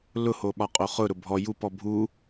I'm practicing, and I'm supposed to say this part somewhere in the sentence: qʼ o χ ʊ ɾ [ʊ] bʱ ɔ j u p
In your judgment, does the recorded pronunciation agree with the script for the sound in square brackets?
yes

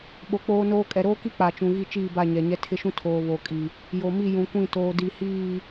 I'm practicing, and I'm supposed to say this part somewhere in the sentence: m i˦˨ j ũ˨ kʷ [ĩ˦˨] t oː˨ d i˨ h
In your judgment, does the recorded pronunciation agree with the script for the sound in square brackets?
yes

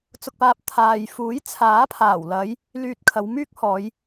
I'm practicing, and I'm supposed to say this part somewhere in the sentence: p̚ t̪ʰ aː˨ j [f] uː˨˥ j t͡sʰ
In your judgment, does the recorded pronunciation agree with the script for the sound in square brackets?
yes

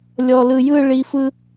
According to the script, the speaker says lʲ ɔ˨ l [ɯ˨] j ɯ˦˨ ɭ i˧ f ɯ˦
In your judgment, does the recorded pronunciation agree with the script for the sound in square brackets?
yes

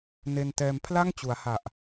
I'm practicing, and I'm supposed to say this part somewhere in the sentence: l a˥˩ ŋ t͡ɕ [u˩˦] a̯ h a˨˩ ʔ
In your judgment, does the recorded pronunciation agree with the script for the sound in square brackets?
yes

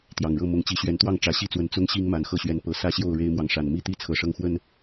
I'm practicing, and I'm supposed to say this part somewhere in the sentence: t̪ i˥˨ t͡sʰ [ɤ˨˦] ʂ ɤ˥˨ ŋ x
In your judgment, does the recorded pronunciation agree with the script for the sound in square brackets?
yes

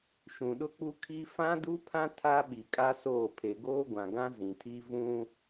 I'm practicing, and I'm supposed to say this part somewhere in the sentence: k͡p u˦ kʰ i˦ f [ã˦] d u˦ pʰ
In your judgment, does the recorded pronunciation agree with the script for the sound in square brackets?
yes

